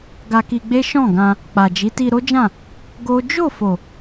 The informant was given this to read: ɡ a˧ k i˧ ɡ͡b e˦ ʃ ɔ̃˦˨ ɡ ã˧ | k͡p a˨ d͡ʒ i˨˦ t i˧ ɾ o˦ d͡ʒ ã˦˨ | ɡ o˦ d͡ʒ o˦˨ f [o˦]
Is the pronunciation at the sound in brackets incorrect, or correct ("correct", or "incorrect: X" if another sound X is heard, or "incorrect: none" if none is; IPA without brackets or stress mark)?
incorrect: o˨